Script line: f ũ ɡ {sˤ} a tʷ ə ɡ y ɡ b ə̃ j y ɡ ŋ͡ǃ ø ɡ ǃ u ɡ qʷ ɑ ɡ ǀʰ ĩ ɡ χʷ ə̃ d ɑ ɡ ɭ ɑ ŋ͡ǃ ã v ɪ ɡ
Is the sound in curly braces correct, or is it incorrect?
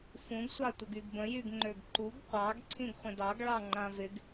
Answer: incorrect